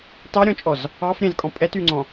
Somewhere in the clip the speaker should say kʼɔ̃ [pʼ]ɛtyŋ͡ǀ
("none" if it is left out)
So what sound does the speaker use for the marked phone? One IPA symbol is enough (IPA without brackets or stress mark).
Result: pʼ